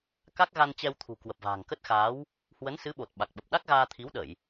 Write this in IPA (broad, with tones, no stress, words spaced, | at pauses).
ka˦˥k̚ɣa˧nt͡ɕɛ˧wt̪ʰṳ˨˩ kwə˨˩p̚va̤ː˨˩ŋ kə˦˥t̚xaː˨˦w | hwə˨˦nsɨ˨˦ɓo˨˩t̚ ɓa˨˩k̚ɓə˨˩p̚ ɗa˦˥k̚ɣaː˧t̪ʰi˨˦wɗə˧˩˨j